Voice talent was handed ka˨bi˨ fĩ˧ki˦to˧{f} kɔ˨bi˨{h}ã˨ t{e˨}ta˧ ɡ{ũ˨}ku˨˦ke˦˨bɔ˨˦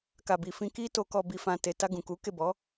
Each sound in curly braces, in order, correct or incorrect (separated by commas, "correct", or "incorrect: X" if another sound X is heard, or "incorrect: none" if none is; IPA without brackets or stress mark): incorrect: none, incorrect: f, correct, correct